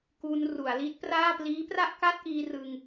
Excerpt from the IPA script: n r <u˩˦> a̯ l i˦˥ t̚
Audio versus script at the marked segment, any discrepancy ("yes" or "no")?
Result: no